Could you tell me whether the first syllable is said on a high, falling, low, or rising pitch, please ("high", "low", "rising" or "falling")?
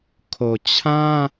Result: low